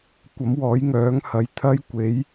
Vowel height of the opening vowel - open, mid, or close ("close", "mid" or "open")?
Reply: open